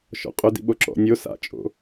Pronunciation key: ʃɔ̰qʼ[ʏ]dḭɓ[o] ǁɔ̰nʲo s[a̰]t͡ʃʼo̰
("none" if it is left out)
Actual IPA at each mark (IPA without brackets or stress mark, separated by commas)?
ʏ, o, a̰